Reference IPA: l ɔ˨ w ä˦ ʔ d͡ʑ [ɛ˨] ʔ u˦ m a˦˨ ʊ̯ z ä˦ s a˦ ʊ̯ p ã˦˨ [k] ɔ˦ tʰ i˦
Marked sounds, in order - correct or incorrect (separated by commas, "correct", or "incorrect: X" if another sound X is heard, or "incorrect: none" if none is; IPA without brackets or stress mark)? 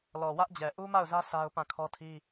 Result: correct, incorrect: kʰ